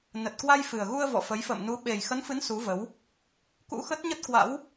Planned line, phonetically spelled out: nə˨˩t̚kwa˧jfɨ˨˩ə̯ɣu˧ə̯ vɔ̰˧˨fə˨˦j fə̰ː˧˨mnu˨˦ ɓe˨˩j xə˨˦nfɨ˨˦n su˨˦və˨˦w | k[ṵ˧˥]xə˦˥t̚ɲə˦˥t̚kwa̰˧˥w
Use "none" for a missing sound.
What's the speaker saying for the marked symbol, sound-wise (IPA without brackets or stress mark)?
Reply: ṵ˧˥